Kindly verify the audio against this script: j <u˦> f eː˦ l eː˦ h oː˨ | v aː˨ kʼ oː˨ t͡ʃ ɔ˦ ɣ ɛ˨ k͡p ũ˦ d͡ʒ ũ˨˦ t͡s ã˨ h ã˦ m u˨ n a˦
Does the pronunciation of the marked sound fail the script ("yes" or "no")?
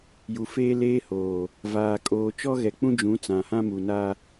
yes